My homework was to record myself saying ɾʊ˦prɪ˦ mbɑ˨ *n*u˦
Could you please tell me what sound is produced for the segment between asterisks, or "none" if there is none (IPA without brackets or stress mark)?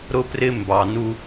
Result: n